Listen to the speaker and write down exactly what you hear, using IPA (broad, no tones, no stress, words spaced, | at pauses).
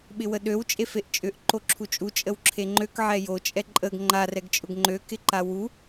ɓɪwəɗøw t͡ʃʼefeʔt͡ʃʼʏʔ ǃoǁʰut͡ʃʼu t͡ʃʼəwǁʰeŋ͡ǃøk ʕɛjo t͡ʃʼɛǃʼəɡ ŋ͡ǃar ɛɡt͡ʃʼʊɡŋ͡ǃø kɪǃawu